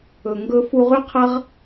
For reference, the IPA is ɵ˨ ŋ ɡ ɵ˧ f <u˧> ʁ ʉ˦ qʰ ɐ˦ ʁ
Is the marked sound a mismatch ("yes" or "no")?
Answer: no